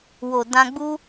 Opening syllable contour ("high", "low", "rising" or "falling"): low